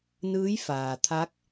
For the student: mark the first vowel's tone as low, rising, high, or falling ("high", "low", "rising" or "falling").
rising